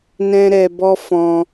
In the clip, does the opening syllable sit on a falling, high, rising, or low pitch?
high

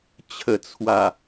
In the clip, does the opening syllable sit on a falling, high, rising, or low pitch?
low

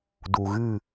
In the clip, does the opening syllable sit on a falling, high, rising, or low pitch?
low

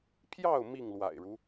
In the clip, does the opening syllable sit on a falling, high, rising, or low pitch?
falling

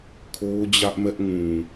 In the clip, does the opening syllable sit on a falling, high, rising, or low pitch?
high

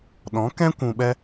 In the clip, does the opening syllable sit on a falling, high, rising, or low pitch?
rising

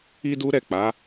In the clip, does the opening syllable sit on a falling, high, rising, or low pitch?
high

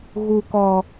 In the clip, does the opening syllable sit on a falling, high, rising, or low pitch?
low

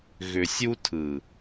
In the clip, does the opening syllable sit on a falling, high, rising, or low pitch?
low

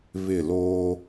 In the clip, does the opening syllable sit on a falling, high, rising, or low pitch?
falling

